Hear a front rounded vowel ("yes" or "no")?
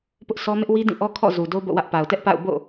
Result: no